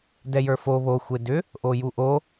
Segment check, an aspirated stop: absent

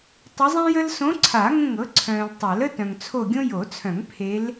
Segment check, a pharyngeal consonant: absent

